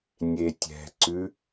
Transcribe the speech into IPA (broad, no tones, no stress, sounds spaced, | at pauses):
nʲ e tʲ ɛ̤ ǀ ʉ